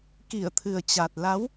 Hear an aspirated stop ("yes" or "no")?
yes